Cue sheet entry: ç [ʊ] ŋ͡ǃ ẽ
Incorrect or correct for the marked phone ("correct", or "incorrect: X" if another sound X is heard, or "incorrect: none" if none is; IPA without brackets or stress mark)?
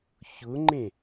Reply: correct